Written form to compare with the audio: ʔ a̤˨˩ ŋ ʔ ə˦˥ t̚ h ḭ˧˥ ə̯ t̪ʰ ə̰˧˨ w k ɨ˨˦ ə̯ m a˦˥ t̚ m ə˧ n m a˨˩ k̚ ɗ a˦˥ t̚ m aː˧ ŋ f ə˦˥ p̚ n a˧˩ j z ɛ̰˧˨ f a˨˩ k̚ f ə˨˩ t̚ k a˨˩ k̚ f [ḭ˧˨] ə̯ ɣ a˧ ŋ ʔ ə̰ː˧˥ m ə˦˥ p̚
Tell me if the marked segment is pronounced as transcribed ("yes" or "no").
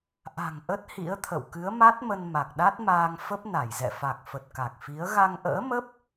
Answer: no